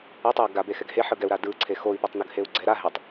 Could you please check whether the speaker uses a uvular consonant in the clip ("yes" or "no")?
no